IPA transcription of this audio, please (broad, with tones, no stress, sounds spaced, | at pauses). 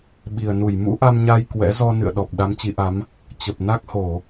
ɓ i˨˩ ə̯ n u˧˩ j m ṵ˧˥ ʔ a˧ m ɲ a˧ j k w ɛ̰˧˥ z ɔ˧ n ɨ̰˧˨ ə̯ ɗ ɔ˨˩ p̚ ɗ a˨˦ m t͡ɕ i˨˦ ʔ a˨˦ m | t͡ɕ ə˨˩ p̚ n a˦˥ k̚ h o˧˩˨